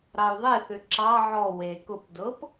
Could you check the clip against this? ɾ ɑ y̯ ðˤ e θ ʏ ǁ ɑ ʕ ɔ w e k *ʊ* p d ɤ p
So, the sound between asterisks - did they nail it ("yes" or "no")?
yes